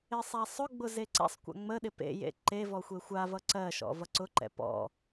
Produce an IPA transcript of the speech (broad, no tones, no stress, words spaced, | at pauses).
ɪsˤasˤʊɡ͡bʊ zeǀɛ̰sˤkʷa̰ ŋ͡məɗɪ pḛjḛ ǃe vɔxʷexʷavʌ ǀɜʃɔ̰ vʌǀʊǃɛ̰ pɔ̰